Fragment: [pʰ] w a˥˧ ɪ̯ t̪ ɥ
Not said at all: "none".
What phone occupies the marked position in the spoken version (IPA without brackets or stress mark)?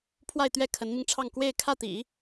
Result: pʰ